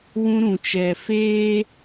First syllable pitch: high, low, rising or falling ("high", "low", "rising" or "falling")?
high